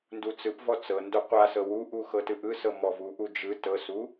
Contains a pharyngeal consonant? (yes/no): no